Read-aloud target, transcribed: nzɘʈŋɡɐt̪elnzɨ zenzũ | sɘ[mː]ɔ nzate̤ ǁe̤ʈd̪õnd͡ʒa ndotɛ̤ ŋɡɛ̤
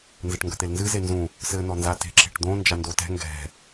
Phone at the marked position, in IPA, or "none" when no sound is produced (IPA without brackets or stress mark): n̪